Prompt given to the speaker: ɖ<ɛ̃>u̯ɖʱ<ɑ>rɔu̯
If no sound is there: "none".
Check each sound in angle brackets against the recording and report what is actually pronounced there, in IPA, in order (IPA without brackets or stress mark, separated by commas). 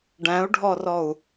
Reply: æ̃, ɔ